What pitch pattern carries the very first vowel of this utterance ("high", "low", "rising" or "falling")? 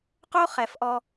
high